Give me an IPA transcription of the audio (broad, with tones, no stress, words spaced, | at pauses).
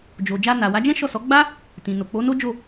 d͡ʒo˨ d͡ʒa˧na˨wa˨˦d͡ʒɛ̃˦ ʃɔ˦˨sɔ˨˦ ɡ͡ba˦ | tĩ˨no˨ k͡po˨˦no˦d͡ʒo˦˨